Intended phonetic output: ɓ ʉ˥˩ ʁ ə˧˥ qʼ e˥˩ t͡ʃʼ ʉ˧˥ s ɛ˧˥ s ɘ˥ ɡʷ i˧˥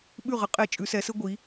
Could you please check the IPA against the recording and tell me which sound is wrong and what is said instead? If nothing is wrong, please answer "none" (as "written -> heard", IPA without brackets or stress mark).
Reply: none